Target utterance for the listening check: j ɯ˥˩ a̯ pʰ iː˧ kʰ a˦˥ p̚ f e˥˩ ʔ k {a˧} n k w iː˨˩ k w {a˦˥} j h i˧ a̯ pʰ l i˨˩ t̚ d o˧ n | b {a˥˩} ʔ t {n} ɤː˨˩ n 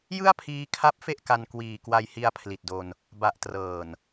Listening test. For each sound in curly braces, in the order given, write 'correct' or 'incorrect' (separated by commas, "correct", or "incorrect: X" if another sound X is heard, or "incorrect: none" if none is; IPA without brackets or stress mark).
correct, incorrect: a˧, incorrect: a˨˩, incorrect: r